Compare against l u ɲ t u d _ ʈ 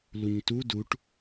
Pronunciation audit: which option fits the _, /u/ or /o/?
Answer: u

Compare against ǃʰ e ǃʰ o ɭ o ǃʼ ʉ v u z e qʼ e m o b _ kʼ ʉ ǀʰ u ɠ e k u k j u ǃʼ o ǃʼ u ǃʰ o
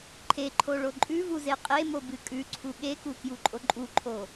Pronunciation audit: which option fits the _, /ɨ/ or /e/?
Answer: ɨ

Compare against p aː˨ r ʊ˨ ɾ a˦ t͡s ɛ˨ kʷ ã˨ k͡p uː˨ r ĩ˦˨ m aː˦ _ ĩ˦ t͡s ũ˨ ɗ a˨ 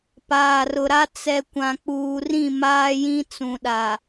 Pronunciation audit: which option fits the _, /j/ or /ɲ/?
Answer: j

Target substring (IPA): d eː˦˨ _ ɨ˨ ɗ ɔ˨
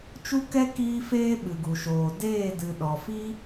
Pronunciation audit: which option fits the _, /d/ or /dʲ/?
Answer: d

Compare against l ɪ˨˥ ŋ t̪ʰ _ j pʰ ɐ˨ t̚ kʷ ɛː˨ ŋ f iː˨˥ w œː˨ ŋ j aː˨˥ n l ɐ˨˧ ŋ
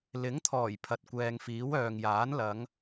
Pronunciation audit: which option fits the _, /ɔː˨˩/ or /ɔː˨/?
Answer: ɔː˨˩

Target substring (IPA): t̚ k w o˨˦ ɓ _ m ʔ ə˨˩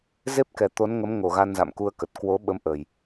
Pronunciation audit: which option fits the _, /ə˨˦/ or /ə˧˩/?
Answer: ə˨˦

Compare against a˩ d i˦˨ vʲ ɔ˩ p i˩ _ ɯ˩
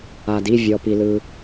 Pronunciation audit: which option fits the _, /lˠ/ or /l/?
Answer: l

